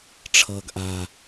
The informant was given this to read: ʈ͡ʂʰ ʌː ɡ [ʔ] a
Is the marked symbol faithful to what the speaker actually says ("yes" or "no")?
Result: yes